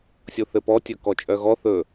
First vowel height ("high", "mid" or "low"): mid